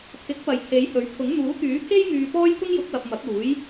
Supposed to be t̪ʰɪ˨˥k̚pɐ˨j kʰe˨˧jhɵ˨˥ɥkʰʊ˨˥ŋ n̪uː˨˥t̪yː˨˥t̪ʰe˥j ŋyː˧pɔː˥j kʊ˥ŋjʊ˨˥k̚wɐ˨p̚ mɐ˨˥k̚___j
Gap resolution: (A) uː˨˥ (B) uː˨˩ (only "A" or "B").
A